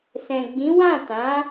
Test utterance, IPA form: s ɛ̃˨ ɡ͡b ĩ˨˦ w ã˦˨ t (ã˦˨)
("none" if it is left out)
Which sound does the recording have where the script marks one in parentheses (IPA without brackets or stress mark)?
ã˨˦